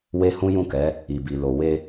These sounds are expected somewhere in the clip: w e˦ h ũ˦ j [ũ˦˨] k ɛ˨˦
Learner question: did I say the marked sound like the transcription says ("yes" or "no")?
yes